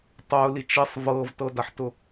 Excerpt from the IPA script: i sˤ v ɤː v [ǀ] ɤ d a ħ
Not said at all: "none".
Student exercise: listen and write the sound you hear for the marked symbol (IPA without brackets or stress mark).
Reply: t